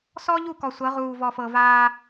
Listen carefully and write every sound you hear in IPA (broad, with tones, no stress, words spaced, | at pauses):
sɔ˦ʎu˦˨kɔ˨ sʷɤ˨˦ʁuː˨vɔ˨fɤ˨ vaː˦